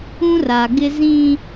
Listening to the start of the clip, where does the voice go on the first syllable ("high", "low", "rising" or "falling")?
high